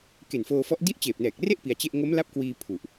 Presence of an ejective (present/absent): absent